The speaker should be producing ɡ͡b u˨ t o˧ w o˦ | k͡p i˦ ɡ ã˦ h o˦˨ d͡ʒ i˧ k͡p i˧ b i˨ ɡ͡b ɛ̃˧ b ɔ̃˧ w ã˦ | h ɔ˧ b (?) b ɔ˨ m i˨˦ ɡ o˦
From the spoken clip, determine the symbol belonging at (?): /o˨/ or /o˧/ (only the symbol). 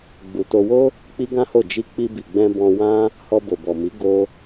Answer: o˨